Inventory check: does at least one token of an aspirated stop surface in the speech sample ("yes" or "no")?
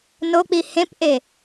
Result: no